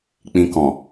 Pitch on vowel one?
low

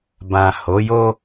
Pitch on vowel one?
low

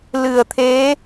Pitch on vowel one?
low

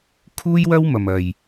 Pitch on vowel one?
high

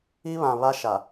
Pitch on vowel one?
high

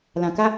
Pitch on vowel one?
low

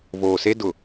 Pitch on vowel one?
low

